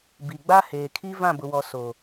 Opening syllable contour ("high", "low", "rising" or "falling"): low